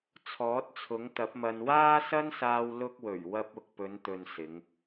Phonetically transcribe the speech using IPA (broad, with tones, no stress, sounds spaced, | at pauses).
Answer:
t͡sʰ ɔː˨˥ t̚ t͡sʰ ʊ˨˥ ŋ t̪ ɐ˨˥ p̚ m ɐ˧ n w aː˥ s ɐ˥ n s aː˧ w l ʊ˧ k̚ w ɵ˨˩ ɥ w ɐ˧ p̚ ʊ˨ k̚ p ɵ˨˧ n t̪ ɵ˨ n s ɪ˨˧ ŋ